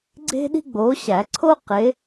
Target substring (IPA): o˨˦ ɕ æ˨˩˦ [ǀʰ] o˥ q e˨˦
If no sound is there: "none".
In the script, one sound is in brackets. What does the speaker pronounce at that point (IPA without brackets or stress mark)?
ǀʰ